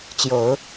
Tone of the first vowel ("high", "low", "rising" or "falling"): rising